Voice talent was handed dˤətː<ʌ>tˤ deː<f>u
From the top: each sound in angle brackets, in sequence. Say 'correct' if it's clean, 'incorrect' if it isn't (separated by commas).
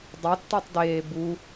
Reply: correct, incorrect